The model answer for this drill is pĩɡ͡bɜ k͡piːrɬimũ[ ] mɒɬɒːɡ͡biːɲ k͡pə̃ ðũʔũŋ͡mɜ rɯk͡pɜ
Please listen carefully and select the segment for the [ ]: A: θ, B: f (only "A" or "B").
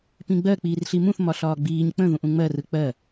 A